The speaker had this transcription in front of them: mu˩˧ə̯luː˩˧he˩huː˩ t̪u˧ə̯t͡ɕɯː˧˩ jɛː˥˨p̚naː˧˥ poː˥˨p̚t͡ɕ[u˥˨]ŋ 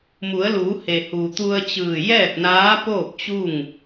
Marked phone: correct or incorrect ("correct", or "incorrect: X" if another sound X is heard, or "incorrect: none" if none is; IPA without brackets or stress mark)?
correct